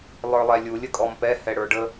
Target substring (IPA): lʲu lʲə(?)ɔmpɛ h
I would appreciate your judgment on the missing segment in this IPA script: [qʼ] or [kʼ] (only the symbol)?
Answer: kʼ